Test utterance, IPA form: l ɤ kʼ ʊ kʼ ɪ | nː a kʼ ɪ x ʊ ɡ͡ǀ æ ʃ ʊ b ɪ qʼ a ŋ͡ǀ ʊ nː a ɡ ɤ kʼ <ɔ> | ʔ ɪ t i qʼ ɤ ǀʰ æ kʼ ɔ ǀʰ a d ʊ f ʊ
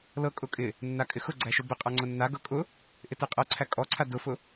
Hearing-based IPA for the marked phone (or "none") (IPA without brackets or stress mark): ʊ